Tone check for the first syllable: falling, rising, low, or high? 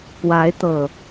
rising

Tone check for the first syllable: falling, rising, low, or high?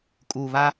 low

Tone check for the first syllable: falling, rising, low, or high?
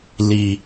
low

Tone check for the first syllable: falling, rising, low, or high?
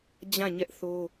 falling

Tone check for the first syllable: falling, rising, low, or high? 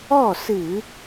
falling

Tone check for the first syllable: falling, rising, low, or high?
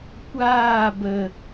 falling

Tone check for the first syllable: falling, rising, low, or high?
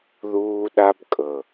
high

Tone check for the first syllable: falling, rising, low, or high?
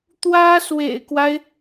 high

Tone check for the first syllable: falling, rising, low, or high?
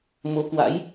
rising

